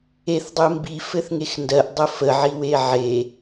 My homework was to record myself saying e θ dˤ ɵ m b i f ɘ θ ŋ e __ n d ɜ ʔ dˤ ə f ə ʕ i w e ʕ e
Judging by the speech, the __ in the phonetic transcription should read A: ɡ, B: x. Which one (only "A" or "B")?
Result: B